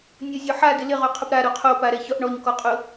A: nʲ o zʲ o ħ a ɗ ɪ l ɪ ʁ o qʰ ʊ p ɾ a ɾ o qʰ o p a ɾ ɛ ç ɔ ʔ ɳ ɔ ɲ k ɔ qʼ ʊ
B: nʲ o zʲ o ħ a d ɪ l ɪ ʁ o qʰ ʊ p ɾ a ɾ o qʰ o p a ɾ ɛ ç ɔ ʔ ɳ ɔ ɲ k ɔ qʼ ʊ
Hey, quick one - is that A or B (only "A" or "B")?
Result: B